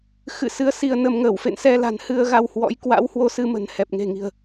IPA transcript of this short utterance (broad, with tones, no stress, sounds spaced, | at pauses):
x ɨ̰˧˨ s ɨ˨˦ ə̯ s i˧ ə̯ n ə˧ m ŋ əː˧˩ w f ḛ˧˨ n s ɛ˧ l a̤˨˩ n h ɨ˧ ə̯ ɣ a˧ w h w ɔ̰˧˥ j k w a̰˧˥ w h w o˧ s ɨ˧ m ə̤˨˩ n h ɛ˨˩ p̚ ŋ e̤˨˩ ŋ i̤˨˩ ə̯